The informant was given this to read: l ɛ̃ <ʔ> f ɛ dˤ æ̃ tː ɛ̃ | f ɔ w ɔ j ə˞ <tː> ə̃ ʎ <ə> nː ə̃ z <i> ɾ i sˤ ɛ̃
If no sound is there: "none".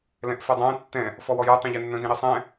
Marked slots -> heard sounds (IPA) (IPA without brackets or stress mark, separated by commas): ʔ, tˤ, ɛ, ĩ